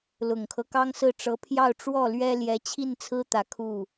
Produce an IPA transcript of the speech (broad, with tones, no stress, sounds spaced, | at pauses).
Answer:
l ʊ˨˩ ŋ kʰ ɤ˦ k ɑ˥ ŋ s ɹ̩˥˩ ʈ͡ʂ ɤ˧˥ pʰ j ɑ˥˧ ʊ̯ ʈ͡ʂ w ɔ˥˩ l ɥ ɛ˥ l j ɛ˧˥ t͡ɕʰ i˥˩ n t͡sʰ ɹ̩˥ t̪ ä˨˩ kʰ u˥˩